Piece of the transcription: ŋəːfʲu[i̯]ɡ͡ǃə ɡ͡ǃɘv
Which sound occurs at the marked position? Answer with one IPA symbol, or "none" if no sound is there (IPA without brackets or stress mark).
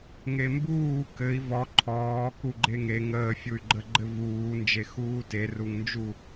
y̯